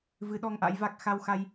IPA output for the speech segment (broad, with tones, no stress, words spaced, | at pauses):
vɨ˨˦ɗɔ˧ŋʔa̰˧˥jva˦˥k̚ xa˧wxa˧j